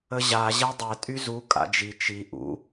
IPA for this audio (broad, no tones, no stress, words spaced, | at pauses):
əʑa ʑɛdˤɛ tʼyzu kʼa̰d͡ʒi t͡ʃi ʔṵ